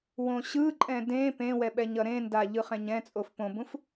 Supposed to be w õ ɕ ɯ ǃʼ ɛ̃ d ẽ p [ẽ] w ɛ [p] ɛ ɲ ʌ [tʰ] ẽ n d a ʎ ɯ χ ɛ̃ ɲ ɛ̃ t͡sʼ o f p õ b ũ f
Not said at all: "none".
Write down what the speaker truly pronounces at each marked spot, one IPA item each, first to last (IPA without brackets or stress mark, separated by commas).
ẽ, ɓ, ɾ